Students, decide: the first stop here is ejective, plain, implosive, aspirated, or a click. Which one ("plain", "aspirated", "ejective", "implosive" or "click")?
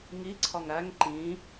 click